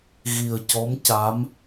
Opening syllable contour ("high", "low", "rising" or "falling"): low